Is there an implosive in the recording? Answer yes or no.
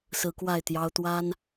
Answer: no